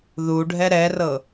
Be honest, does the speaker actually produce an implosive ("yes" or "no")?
no